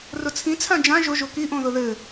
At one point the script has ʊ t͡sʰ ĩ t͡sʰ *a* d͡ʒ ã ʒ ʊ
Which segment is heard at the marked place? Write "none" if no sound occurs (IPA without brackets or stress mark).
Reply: ã